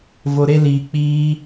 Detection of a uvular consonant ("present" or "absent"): absent